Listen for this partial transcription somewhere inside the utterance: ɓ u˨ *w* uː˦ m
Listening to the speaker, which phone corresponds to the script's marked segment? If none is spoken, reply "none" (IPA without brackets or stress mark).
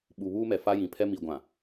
β